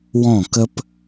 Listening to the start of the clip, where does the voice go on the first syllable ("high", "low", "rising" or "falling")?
falling